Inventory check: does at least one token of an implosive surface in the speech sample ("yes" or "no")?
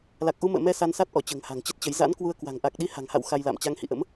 yes